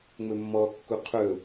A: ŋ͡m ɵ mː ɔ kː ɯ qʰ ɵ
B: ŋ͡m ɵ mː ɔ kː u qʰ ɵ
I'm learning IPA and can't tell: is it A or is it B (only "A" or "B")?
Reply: B